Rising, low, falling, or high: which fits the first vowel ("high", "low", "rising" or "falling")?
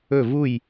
falling